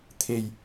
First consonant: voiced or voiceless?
voiceless